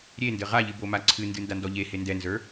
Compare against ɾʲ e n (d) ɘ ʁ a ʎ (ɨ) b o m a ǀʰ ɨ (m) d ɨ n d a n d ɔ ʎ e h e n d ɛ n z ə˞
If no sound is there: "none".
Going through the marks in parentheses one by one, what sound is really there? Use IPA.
d, ɨ, n

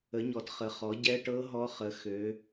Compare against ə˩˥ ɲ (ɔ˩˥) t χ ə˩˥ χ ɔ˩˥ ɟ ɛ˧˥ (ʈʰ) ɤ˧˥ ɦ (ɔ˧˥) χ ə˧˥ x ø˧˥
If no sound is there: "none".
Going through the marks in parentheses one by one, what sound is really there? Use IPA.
ɔ˩˥, ʈ, ɔ˧˥

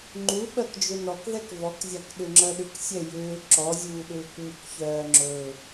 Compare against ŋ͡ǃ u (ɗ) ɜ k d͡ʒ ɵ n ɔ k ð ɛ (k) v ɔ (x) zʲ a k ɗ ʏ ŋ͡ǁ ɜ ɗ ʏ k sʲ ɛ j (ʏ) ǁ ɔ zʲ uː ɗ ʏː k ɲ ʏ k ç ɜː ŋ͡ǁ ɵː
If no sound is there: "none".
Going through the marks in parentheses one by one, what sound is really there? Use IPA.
ɓ, k, k, ʏː

